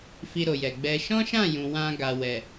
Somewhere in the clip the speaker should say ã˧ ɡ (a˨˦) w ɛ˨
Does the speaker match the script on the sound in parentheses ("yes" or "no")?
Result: no